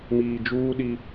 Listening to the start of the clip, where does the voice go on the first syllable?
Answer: low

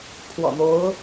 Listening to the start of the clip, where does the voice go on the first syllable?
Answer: low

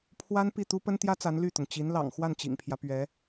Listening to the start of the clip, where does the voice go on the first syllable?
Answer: high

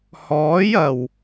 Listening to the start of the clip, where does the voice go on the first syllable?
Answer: rising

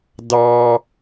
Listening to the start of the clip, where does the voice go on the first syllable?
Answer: high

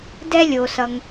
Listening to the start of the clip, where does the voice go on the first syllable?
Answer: high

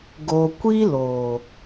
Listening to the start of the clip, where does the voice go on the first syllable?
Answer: low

